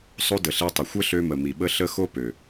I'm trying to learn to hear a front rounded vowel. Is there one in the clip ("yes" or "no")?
yes